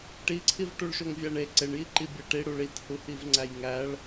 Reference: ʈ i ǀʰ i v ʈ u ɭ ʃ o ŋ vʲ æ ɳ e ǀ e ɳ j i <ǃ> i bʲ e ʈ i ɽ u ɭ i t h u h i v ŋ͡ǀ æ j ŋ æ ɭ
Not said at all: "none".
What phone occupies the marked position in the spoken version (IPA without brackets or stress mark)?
ǃ